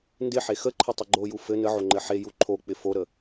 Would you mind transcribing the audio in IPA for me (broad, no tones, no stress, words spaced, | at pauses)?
ndɪħe xəǃʰɪ tˤəɡ͡ǃoju fɘ nəʕo ŋ͡ǃɘħeju ǃʰok͡pɪ foɾə